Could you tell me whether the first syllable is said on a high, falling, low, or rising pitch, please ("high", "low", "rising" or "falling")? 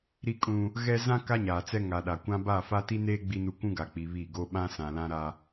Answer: high